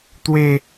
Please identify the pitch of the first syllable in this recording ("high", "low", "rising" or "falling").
low